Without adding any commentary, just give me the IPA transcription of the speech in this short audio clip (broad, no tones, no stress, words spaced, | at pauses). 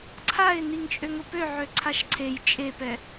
ǀʰaɪ̯ niŋt͡ʃʼøŋʊpø ʕøǀʰaʃǀʰej t͡ʃʼepɛ